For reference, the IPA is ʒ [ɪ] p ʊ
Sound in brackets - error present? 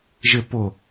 no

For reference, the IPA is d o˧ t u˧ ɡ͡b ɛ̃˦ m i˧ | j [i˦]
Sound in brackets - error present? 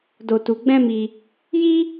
no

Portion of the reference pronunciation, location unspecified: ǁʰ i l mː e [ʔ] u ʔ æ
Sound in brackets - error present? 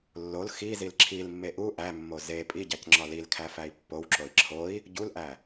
no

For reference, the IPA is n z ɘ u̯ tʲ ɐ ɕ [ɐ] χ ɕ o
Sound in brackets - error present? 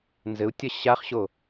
yes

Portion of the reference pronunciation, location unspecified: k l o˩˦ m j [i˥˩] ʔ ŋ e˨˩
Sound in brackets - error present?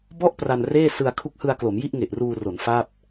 no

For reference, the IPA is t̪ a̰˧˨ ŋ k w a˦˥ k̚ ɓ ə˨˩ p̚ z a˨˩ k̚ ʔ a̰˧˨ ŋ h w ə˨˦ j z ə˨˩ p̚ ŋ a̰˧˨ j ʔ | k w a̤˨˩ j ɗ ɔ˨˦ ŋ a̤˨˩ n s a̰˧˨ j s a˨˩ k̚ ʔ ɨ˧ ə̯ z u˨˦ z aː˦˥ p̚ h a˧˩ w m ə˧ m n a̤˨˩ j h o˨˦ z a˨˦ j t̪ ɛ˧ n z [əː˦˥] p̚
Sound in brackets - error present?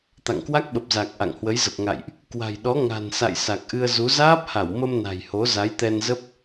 yes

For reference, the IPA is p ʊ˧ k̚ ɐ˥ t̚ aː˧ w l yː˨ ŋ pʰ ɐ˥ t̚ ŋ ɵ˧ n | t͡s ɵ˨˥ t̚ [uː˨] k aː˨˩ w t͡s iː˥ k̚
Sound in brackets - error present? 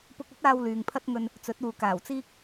no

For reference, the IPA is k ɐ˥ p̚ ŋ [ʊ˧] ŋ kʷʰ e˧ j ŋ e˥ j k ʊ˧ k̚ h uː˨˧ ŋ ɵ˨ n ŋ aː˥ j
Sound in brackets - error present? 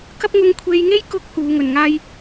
no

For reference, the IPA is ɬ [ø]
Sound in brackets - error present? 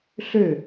no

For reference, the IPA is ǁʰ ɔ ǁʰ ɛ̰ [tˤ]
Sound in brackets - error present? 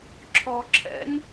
yes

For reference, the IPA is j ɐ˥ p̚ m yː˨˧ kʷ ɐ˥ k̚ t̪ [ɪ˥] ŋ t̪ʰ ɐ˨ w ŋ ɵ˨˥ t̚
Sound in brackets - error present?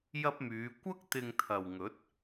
yes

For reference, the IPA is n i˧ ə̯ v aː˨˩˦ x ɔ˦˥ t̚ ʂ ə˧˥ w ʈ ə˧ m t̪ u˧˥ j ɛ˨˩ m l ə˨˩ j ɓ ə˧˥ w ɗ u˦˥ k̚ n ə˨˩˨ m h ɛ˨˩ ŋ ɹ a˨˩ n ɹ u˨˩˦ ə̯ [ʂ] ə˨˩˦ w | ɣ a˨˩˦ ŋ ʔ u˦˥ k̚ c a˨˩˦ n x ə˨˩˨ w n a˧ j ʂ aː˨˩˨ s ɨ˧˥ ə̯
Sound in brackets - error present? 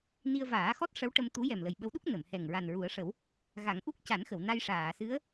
no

